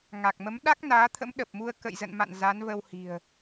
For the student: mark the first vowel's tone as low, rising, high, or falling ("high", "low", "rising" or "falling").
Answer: low